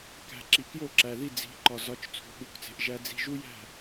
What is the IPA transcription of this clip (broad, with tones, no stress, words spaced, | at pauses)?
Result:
kæ̤˩ ǁi˩kjo˥˩ǁæ˩ði˥˩ d͡zi̤˩˥ǃɒ˩ zɒ˩˥t͡ʃ t͡sʰṳ˩ɠu˩˥kt͡se̤˩ʔ ʒæ˧d͡zi̤˧ ʒu˥jæ̤˥˩